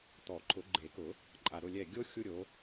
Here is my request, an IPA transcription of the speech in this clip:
t̪ɔ˨˩˦ǃʰʊ˨˩˦ɡ͡ǃe˨˩˦kʊ˨˩˦ | ǃʼa˨˩ɾʊ˦˨lʲɛ˦˨ ɡʲo˥ xʲu˥ɾʲo˨˥

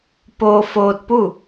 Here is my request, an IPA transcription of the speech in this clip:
poː˧foː˧t̚pu˥˨

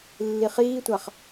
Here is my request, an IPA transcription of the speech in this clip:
lːiχiːtʷaχ

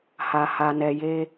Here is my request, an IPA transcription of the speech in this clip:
ha˨ ha˨nɛ˨je˧

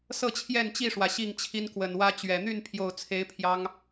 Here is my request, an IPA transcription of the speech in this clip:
sɤ˥˨t͡ɕʰjɛ˥˨nt͡ɕi˥˨ʂwä˩ ɕi˥˨ŋ t͡ɕʰi˦nkwə˨˩nwä˦t͡ɕɥɛ˨˩ n̪y˥˨npʰjo˨˩ʊ̯t͡sʰe˨˦ɪ̯ pʰjɑ˦ŋ

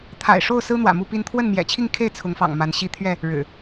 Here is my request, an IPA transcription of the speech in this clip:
t̪ʰa̰˨˩ɪ̯ʂo˥˨ʊ̯sɹ̩˦ n̪wä̰˨˩mu˥˨pi˦n t̪ʰwə˥˨nmjɛ̰˨˩t͡ɕʰi˥˨ŋkʰe˥˨ɪ̯ t͡sʰʊ˨˦ŋfɑ̰˨˩ŋ ma˨˦nɕi˦ t̪ʰɥɛ˥˨ | ɻɻ̩˨˩

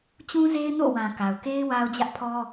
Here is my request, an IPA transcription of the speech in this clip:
t͡ɕũ˦ze˦ɪ̯ no̰˦˨wã˨ ka˨ʊ̯ke˦ɪ̯ wa˦ʊ̯d͡ʑä˦ʔpʰɔ˦

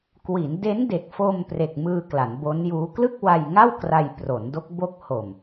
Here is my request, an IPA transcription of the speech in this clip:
kwi˩˦n de˦˥nde˨˩k̚fo˧m pre˨˩k̚mɯː˧ kla˩˦nbo˦˥njuː˦˥ klɯ˥˩k̚wa˧jŋa˥˩w kra˧j pro˩˦ndo˦˥k̚ bo˦˥k̚ho˨˩m

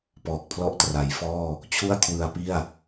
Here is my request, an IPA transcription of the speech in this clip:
pɔː˨˩k̚pʰlɔ˦˥ʔtra˩˦jfɔː˥˩ | t͡ɕʰu˥˩a̯kʰwɯ˧a̯pi˥˩a̯

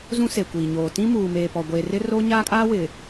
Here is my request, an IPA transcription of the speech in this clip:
zũ˦se˨kʷiː˨ɲoː˨ tĩ˦muː˨meː˨pɔ˨ ɡʷe˨ rɪ˦ro˦ ɲaː˦kʼaː˦wɪ˨

